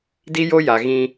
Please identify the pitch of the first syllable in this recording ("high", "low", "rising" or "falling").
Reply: high